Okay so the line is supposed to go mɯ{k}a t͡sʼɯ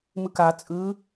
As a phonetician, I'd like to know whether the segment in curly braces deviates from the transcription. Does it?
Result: no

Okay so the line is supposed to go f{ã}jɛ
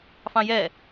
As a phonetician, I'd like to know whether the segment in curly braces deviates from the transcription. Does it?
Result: yes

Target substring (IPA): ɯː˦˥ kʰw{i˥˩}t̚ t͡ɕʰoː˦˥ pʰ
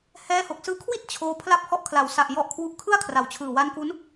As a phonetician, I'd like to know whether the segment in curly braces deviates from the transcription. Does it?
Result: no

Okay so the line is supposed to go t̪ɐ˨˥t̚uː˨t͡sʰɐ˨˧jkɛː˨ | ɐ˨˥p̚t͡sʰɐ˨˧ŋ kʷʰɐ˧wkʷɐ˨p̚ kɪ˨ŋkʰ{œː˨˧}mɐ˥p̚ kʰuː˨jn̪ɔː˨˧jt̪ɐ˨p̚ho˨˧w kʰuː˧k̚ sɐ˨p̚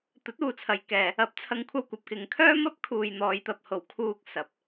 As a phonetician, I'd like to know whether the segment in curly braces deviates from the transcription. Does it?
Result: yes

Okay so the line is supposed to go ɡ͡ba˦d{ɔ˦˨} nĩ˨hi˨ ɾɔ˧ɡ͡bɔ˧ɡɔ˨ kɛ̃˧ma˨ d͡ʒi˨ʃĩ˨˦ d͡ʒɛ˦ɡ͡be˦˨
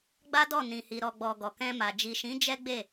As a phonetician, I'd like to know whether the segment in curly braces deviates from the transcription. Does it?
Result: no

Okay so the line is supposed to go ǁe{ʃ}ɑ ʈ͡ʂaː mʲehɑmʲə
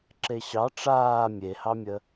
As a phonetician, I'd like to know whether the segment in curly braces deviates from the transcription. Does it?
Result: yes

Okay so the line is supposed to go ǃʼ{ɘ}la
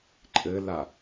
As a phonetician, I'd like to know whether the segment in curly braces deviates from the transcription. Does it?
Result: no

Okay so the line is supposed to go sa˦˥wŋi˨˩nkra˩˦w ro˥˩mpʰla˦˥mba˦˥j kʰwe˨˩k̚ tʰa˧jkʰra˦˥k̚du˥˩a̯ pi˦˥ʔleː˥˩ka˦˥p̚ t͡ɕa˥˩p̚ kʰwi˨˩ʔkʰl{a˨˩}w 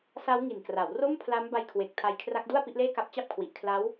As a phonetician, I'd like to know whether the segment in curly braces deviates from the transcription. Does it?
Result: yes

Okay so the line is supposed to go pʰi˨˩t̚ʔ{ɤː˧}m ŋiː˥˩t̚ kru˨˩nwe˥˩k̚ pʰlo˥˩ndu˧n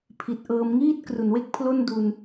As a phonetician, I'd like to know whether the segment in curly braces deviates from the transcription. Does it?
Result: no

